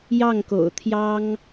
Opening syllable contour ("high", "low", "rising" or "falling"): falling